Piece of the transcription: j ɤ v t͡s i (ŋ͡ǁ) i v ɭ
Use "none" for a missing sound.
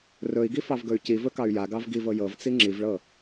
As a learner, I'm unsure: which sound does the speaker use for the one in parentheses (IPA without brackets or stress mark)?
ŋ͡ǁ